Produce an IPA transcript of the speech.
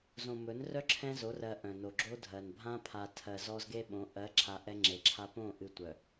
z õ˨ m ɵ˨˦ n r œ˦ ǁʰ ɛ̃˦ z o˨˦ r ɜ˨ ʔ œ̃˨ n o˨ ɡ͡ǁ o˦ dʱ ɜ˨ n bʱ ã˦ pʰ a˨ tʰ ɜ˨ z ɔ˦ z ɡ e˦ ɓ õ˨˦ ʔ ɜ˨˦ ǁʰ a˨ ʔ ɛ˦ ŋ͡ǁ e˨ ǁʰ a˦ p õ˦˨ ʔ ɨ˨ tʷ œ˨

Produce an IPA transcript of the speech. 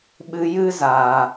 ɓ ɨ˧ j ɨ˦ z aː˧

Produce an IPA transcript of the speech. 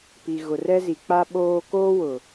p i˨ ɣ ʊ˨ r ɛ˦ z i˨ k͡p a˦ ɓ oː˦ k oː˦ w ʊ˨

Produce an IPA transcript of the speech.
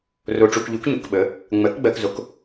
r o˧ ʈ͡ʂ u˧ k ʎ u˨˥ k ɲ u˩˧ k ɓ ə˨˥ | ŋ͡m ɜ˨˥ k ɡ͡b ɜ˧ k z o˨˥ k

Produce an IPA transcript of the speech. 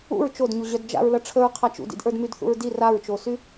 ṵ ɹ t͡ʃ o d ɲ u ʑ œ d d͡ʒ a̰ ɹ l ʌ ʈ͡ʂʰ ə ɹ qʰ a t͡ʃ ṵ d ḭ d ʔ ə˞ d m y d θ ṵ ɹ d i r a ɹ t͡ʃ o s y

